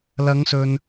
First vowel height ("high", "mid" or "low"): low